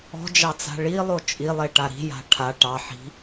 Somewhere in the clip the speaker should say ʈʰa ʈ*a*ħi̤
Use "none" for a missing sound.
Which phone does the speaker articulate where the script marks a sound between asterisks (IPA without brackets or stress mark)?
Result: ɑ